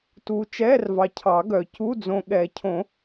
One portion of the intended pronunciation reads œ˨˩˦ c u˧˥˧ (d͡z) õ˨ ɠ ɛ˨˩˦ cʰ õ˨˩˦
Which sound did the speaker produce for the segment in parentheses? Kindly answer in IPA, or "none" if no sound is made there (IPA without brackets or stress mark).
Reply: d͡z